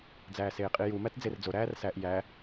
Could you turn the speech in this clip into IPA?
d͡z æː s eː qʼ i j u m æ t d͡z e r d͡z o ɾ æː r s æ ʔ j æ

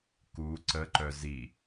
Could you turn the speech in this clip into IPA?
k u ǀ ə ǃ œ z i

